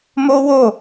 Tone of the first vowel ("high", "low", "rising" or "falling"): high